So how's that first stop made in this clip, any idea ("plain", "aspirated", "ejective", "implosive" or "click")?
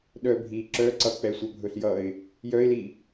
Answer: implosive